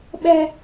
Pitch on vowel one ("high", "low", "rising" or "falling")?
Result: high